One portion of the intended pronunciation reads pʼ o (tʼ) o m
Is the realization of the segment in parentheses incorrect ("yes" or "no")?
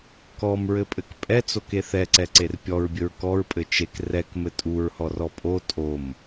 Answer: no